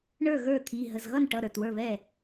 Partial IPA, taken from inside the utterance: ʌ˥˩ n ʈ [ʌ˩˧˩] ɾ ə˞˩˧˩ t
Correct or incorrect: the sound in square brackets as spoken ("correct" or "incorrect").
correct